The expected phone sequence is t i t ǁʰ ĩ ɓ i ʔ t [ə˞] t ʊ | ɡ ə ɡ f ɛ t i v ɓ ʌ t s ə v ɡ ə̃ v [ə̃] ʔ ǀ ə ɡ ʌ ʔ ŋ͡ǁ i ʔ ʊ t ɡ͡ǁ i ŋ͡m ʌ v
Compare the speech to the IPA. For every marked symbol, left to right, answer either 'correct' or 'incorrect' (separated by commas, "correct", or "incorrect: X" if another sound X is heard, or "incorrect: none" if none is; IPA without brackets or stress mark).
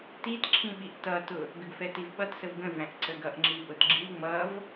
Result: incorrect: ʌ, incorrect: æ̃